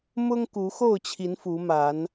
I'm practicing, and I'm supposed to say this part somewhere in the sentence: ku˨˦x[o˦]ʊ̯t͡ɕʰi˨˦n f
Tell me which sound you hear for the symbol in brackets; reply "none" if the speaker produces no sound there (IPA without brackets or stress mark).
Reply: o˥˨